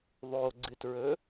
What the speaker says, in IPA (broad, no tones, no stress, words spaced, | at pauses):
ðˤoɡ͡ǀɨtɹɵ